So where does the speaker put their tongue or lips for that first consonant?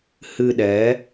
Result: throat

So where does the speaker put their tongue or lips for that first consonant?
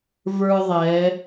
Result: lips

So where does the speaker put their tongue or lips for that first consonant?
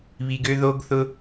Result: lips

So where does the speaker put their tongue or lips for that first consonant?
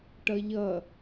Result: retroflex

